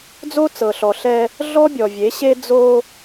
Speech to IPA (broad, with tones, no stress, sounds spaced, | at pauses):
d͡z o˦ t͡s ɤ˨ ɬ ɔ˨ ɬ ɛ˦ | ɮ ɔ˦ bʲ ɔ˨ vʲ e˨˦ ɕ e˦ d͡z o˦